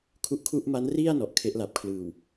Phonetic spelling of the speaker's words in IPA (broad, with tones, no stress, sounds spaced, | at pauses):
kʰ u˦˥ ʔ kʰ u˥˩ ʔ m a˦˥ n r i˥˩ a̯ n ɔ˨˩ ʔ kʰ e˦˥ ʔ l a˨˩ p̚ kʰ l ɯː˨˩ w